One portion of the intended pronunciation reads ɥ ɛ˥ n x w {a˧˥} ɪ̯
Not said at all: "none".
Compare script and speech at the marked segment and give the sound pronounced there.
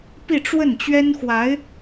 a˧˥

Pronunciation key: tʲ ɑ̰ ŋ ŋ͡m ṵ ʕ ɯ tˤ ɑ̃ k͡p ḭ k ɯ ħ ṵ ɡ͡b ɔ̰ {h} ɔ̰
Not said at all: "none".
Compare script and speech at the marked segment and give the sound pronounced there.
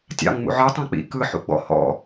h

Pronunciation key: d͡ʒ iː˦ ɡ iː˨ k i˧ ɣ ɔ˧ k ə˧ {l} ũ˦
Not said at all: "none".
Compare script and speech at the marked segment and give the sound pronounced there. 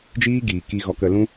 l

